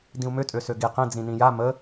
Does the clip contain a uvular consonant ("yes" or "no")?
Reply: yes